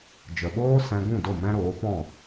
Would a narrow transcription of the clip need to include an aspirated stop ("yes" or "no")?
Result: no